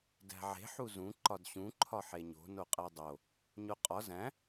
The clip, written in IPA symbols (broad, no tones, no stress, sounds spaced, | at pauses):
d æ̤ ʕ e̤ ħ u z ũ ǃ ɒ d ɕ ũ ǃʰ ɒ ħ e ɲ o̤ n o qʼ æ dˤ o | ɲ o qʼ ɒ z æ̃